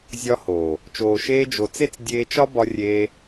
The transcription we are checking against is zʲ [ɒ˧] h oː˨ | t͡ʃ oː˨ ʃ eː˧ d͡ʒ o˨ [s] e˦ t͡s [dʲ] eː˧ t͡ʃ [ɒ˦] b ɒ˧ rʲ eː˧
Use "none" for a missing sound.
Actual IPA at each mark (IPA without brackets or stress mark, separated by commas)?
ɒ˧, t͡s, dʲ, ɒ˦